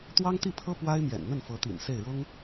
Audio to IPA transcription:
t̪ w ɑ˥ ŋ t̪ i˥˩ pʰ ɤ˥ p w a˥ ɪ̯ m j ɛ̰˨˩ n n̪ ə˥˩ n f ɤ˧˥ t̪ ḭ˨˩ n s e˥˩ ɪ̯ ɻ ʊ˥ ŋ

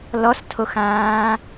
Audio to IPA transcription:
l ɔ s tʰ o x ãː

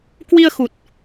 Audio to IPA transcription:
k w i˧ ə̯ x u˨˩ t̚

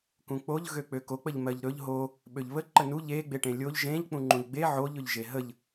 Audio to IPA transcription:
k ũ k͡p o ʎ ɣ ø k͡p ø k o k͡p ə ʎ m ɜ ʎ ɾ ɵ ʎ ɦ o | ɓ ø ʎ β ə ǃ ə n u ʎ e ɡ͡b e ʈ ẽ lʲ o ʎ ʒ ẽ ʎ k͡p ũ ŋ͡ǃ ũ ʎ ɡ͡b e ʕ o ʎ ɵ ʎ ʒ e ɦ ə ʎ

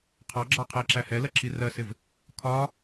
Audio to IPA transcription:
qʰ ɑ ɡ͡ǁ ɑ qʰ ɛ ǁ æ h ɛ l ɜ ǁ i r ɜ s ɪ v | kʰ ɒ

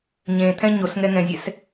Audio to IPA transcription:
ɲ ẽ t̪ʰ ɛ̃ ɲ o s ŋ ɛ ŋ ɛ̃ zʲ ɛ s

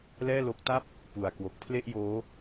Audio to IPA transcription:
l ɛː˥˩ l o˦˥ k̚ t a˥˩ p̚ | p u˨˩ a̯ k w o˨˩ k̚ pʰ l e˥˩ ʔ j oː˦˥

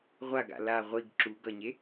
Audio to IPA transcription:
ʁʷ a ɡ a̰ l a ʁʷ i ɡ ǁ u ɡ ʌ ɲ e

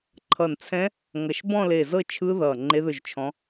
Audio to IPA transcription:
ǃʰ ʌ˧˩ n t͡sʰ ɛ̃˦˥ | ŋ ʌ˧˩ ʃ b ɔ̃˥˧ l e˧˩ z ɤ˥˧ t͡ʃʰ ɯ˦˥ ð ʌː˧˩ ŋ͡ǃ e˦˥ ð ɵ˥˧ ʒ t͡ʃʰ ɔ̃˦˥

